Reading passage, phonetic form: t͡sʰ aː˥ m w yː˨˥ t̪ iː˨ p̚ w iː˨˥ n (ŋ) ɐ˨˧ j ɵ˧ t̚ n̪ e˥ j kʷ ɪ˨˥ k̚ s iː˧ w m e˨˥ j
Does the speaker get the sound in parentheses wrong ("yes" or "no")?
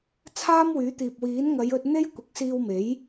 no